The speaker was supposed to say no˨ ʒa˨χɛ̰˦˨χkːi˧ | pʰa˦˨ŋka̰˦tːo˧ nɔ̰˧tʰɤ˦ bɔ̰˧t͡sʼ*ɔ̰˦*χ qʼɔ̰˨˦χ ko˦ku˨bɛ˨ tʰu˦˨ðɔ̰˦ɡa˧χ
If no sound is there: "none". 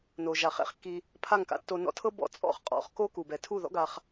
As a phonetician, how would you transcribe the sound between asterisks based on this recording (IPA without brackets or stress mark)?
ɔ̰˦˨